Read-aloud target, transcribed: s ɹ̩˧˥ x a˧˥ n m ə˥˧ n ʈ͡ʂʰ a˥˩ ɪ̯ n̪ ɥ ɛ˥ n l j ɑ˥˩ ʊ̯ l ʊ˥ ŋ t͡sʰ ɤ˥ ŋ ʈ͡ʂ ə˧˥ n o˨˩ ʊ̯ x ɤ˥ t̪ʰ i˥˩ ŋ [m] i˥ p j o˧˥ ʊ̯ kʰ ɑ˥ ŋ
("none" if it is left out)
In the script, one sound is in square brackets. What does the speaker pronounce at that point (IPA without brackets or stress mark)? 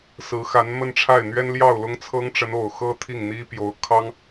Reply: n̪